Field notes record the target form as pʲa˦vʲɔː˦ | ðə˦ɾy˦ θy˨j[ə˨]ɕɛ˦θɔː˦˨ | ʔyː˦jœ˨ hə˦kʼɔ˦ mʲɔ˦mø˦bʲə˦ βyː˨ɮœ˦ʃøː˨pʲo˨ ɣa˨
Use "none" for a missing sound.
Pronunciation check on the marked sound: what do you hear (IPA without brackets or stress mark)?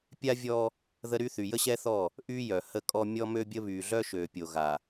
ə˦